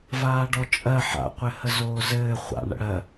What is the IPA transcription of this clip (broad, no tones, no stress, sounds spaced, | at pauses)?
v aː ɖ ɔ t͡ʃʼ ɜ ħ a̰ qʷ ɘ h ə z oː z ɘː χʷ a̰ ɳ ə̰ ɽ ɜ